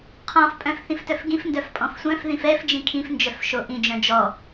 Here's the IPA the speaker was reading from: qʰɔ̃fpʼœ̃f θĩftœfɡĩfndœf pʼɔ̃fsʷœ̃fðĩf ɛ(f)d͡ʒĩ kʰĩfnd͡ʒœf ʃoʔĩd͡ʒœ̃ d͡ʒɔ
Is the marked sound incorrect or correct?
correct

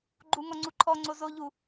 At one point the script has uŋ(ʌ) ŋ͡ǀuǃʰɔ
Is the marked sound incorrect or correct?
incorrect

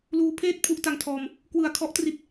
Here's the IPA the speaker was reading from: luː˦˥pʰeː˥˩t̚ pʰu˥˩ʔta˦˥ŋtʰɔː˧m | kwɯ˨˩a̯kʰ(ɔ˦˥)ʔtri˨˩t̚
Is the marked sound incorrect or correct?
correct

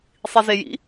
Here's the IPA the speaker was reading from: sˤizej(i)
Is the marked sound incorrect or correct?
incorrect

